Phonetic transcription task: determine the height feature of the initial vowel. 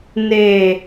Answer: mid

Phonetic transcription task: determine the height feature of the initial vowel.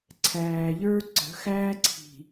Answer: low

